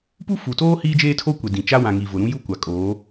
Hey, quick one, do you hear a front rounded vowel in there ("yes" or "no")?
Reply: no